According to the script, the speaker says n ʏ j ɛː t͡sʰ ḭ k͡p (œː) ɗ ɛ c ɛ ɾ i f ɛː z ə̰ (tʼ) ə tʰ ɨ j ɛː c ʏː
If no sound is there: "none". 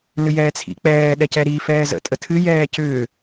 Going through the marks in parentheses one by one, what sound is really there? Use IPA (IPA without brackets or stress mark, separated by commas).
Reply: ɛː, tʼ